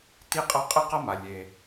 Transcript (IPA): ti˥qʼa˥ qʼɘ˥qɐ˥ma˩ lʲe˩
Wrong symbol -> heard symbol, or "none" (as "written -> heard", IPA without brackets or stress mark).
none